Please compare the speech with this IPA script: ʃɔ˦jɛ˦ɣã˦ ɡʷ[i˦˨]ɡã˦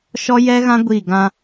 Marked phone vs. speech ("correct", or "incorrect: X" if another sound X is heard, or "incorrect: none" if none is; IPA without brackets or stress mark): correct